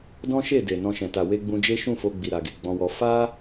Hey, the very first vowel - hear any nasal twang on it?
yes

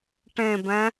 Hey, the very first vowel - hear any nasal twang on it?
yes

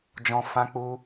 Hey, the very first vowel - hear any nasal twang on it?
yes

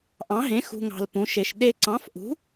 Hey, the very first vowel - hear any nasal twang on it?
yes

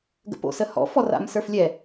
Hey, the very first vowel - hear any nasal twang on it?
no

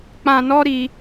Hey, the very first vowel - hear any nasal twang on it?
yes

